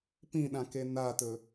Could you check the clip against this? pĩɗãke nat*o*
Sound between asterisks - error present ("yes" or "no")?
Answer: yes